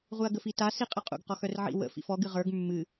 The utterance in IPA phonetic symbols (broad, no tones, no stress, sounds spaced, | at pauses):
ʁ u ɐ̯ ɡ ə f i t a s i qʼ ə qʼ ṵ ɡ q ɔ x œ r ʕ ḭ w ə̰ f ḭ f ɔ ɡ ɨ ʁ ə˞ ɡ mː ɨ